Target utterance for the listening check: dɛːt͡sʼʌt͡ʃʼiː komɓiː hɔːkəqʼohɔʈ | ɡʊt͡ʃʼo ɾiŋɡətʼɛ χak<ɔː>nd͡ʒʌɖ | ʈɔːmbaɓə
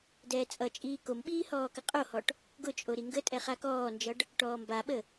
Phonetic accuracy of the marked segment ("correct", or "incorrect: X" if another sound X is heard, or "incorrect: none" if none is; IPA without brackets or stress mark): correct